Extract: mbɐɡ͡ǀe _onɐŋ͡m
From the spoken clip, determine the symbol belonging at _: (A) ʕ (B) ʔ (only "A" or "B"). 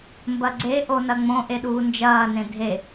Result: B